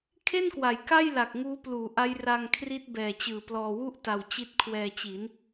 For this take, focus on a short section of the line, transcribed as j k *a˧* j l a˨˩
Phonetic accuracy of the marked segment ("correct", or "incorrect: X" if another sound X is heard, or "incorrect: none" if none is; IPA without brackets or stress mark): incorrect: a˥˩